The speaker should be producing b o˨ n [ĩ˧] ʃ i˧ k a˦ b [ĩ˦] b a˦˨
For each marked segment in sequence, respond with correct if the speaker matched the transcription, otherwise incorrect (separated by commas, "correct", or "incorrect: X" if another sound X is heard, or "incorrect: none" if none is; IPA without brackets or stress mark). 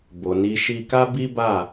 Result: incorrect: i˧, incorrect: i˦